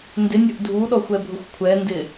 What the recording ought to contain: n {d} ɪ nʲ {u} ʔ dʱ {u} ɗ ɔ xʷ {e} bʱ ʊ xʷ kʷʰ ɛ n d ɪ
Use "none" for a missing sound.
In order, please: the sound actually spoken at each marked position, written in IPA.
d, o, u, ɛ

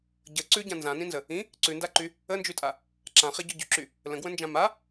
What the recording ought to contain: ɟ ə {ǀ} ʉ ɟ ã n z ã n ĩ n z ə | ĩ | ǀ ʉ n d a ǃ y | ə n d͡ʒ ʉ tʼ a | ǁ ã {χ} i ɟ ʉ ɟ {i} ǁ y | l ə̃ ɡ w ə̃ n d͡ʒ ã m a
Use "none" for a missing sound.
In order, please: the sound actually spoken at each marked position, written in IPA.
ǀ, χ, y

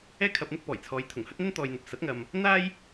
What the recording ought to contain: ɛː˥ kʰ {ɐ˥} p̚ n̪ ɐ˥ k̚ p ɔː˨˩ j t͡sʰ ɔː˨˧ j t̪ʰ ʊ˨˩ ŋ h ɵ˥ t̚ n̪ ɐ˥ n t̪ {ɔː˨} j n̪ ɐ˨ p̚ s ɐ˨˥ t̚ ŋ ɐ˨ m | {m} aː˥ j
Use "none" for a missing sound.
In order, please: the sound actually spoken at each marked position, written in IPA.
ɐ˧, ɔː˨, n̪

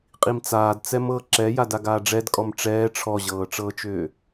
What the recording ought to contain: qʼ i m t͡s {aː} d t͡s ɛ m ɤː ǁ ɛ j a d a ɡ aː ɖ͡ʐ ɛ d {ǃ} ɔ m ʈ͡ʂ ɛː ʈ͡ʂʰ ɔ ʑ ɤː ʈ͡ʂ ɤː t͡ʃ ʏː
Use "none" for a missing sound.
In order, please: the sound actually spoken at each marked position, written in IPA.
aː, kʼ

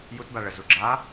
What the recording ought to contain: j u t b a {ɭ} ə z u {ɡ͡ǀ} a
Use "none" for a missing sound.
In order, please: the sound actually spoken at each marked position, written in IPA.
ɭ, ɡ͡ǁ

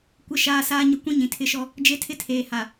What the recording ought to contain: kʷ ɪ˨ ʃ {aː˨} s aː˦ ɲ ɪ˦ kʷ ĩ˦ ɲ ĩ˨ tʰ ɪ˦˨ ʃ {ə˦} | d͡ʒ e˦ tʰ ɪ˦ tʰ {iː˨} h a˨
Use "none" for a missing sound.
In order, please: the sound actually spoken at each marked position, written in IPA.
aː˨, ɔ˦, eː˨

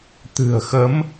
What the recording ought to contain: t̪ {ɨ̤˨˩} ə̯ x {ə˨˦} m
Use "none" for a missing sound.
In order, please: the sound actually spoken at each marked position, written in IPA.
ɨ̤˨˩, ə˨˦

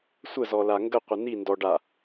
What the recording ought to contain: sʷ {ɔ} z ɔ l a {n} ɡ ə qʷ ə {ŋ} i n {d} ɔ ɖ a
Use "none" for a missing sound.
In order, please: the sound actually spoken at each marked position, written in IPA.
ə, ŋ, n, d

